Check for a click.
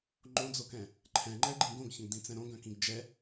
present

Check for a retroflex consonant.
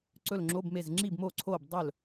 absent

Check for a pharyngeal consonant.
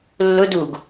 absent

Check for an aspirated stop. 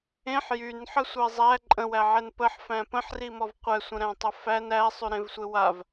absent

